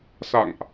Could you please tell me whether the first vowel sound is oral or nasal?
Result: oral